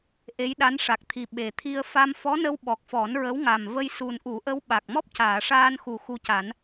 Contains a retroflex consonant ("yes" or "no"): yes